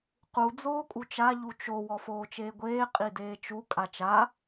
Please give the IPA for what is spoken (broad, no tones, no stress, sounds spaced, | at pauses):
q u d͡z oː kʼ u t͡ʃ a ʎ u t͡ʃ o w ɔ f oː t͡ʃ eː ɡʷ eː qʼ i d eː t͡ʃ u kʼ a t͡ʃ a